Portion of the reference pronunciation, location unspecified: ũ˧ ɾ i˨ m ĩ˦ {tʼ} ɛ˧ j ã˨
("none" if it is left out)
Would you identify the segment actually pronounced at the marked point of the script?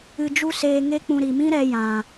ɾ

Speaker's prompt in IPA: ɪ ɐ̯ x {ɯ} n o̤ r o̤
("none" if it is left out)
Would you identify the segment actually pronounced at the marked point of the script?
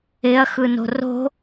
ɯ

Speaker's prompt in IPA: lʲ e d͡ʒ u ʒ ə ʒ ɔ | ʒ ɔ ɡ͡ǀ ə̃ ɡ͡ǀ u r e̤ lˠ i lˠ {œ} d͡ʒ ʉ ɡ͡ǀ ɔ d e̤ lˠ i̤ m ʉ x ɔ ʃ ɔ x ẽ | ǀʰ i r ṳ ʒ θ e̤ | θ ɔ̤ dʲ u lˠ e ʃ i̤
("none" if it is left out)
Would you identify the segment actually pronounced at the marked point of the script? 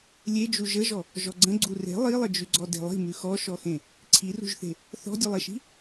ə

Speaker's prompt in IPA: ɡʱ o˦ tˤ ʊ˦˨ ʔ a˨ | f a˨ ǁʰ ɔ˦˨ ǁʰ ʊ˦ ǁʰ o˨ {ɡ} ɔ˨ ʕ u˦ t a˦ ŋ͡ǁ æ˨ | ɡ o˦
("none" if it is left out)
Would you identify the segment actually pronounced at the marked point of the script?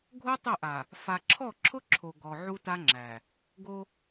ɡ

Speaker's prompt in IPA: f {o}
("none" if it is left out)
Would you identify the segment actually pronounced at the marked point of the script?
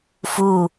u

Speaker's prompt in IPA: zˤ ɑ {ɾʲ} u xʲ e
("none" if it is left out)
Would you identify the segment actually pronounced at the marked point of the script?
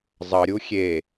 ɾʲ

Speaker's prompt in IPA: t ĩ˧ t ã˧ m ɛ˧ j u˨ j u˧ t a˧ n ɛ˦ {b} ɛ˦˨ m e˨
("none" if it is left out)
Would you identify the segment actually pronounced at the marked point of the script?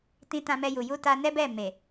b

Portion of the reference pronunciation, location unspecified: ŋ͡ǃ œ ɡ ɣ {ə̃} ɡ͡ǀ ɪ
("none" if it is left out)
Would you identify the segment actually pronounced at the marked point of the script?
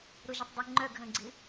ə̃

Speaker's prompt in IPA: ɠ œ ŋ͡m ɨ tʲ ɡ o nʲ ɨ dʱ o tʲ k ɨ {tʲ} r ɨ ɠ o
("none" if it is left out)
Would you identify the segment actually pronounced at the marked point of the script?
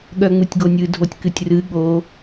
tʲ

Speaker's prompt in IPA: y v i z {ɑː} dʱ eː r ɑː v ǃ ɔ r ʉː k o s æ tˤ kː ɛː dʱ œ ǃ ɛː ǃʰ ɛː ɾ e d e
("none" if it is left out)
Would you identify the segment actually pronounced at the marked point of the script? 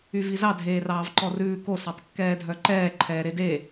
ɑ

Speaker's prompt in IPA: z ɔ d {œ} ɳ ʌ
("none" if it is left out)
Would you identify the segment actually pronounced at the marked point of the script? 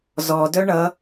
œ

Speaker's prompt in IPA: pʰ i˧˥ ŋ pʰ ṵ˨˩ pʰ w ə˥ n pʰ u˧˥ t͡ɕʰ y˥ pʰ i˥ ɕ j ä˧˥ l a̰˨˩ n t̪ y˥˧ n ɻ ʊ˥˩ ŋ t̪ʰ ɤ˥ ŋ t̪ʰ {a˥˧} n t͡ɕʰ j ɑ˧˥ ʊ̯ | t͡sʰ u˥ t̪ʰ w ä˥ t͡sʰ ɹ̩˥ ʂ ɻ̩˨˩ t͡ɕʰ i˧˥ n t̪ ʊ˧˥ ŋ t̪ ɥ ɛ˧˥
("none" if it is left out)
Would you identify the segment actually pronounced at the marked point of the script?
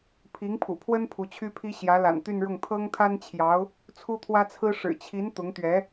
a˥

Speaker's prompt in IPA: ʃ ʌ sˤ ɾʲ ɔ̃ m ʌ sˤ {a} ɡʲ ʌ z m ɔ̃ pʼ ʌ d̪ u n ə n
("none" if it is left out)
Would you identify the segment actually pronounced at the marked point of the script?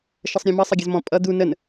ʌ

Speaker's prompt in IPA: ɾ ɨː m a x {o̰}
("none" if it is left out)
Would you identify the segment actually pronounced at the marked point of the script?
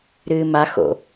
o̰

